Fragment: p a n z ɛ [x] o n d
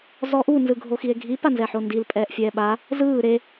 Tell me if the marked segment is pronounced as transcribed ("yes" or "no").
no